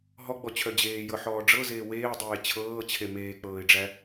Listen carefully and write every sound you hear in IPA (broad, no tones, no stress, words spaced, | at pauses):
ɦɔɡ͡bɔt͡ɕʰœ d͡ʑeːjɤħɔː ɖ͡ʐɤzeː weːdˤeː t͡ɕʰɤːt͡ɕʰe meːk͡pɤːɪ̯ɖ͡ʐæ